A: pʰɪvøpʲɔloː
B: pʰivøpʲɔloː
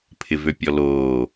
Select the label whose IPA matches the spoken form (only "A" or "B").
A